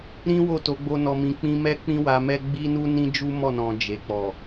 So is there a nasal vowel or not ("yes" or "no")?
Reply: yes